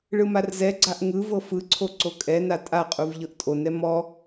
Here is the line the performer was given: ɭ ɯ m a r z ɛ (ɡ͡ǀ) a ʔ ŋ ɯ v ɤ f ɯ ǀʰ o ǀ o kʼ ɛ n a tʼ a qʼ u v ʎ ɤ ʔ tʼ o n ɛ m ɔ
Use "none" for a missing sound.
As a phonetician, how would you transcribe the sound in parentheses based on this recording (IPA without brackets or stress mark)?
ɡ͡ǀ